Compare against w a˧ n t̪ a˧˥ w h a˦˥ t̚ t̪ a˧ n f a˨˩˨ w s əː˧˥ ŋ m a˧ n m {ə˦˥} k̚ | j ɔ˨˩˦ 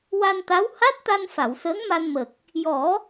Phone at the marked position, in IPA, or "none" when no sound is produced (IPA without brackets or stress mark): ə˨˩